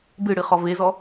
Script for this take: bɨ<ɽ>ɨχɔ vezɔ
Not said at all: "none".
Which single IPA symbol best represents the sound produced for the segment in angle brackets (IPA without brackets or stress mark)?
ɽ